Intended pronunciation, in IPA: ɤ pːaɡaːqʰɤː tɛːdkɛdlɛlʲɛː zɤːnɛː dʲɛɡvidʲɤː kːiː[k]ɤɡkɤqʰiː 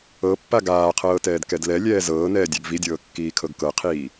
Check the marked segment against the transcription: incorrect: kʰ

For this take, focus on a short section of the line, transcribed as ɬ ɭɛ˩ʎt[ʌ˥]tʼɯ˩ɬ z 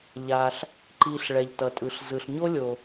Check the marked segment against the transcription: incorrect: ʌ˩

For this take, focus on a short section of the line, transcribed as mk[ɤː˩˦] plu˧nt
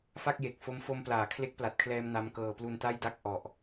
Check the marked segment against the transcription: incorrect: ɤː˧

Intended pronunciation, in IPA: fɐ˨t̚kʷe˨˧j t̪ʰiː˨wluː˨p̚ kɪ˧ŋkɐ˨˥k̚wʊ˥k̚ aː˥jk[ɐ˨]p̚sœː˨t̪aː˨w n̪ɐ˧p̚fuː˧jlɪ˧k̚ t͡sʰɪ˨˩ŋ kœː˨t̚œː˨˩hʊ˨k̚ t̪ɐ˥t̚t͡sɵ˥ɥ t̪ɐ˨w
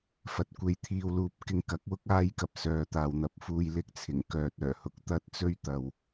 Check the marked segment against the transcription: correct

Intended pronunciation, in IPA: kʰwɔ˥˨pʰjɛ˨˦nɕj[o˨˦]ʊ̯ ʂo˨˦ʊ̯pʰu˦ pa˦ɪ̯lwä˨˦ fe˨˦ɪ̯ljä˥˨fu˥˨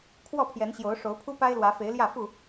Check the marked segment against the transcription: correct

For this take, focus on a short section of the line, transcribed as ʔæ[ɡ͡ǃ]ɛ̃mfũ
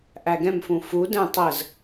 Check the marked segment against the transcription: incorrect: ɡ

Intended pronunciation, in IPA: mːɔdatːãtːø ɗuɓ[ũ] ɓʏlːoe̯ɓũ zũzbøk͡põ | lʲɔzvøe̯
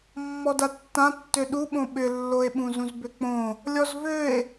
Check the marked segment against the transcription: incorrect: õ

